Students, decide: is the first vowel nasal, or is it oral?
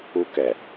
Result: oral